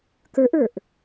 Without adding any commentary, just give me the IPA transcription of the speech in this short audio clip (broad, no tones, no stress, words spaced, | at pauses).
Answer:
kə˞ʔə˞ʔ